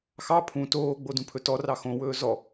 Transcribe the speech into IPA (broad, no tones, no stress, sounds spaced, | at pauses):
x ɑ pʰ ũ t oː ɡ͡b o d ũ pʰ ɵ t ɔ r ɑ x õ w ɵː z ɔ